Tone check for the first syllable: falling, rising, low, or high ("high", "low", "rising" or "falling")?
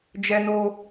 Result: high